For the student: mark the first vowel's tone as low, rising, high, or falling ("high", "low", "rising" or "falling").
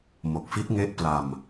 low